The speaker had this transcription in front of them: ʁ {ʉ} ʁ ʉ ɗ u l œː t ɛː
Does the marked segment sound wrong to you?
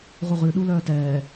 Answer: yes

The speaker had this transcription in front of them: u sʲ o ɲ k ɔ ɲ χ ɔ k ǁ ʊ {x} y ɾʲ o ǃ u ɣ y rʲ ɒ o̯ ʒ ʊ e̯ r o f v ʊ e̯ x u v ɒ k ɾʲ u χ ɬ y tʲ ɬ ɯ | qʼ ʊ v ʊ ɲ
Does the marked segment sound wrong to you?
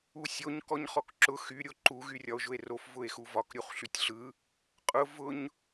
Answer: no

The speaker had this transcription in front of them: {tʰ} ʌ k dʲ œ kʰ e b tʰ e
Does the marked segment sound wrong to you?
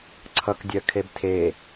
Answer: yes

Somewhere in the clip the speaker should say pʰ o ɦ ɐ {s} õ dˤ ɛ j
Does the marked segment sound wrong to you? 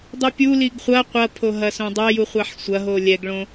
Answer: no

